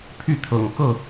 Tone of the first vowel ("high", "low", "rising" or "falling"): falling